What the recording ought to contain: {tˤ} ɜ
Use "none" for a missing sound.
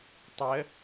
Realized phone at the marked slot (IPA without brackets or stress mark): tˤ